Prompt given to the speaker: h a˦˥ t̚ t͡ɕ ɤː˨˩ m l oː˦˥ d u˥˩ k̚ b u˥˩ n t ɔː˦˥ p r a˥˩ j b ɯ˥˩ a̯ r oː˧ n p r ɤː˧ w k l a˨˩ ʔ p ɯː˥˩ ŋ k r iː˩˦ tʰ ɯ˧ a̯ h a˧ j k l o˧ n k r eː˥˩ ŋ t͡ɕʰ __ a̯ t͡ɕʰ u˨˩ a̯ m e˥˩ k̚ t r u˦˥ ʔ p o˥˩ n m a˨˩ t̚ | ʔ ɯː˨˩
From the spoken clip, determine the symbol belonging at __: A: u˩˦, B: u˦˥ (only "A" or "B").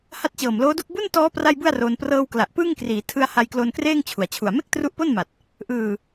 A